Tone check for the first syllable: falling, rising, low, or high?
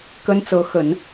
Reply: high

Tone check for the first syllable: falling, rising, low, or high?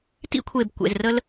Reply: high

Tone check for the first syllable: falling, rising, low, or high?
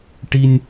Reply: high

